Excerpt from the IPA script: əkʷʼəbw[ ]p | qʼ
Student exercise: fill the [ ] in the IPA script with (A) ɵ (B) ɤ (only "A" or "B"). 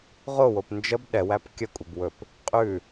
A